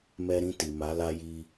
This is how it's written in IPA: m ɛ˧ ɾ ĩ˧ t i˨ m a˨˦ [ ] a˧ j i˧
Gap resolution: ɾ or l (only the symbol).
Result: l